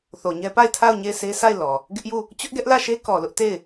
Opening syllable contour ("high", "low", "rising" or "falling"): low